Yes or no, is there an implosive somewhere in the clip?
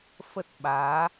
yes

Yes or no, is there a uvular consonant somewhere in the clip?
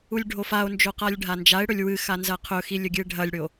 yes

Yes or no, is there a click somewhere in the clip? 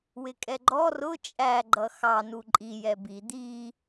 yes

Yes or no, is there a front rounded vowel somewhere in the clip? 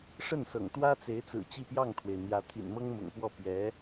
no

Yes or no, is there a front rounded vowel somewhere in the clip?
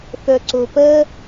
yes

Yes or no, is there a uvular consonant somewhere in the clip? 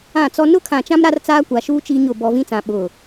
no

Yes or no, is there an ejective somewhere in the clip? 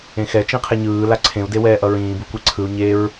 no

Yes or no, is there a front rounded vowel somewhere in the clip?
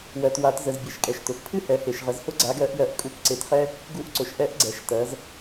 no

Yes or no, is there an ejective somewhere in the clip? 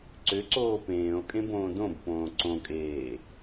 yes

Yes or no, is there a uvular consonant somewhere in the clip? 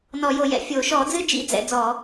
no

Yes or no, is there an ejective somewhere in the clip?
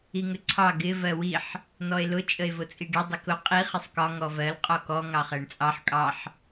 yes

